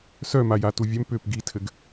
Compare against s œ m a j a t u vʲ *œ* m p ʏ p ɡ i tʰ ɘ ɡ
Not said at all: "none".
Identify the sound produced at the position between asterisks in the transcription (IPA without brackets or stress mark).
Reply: œ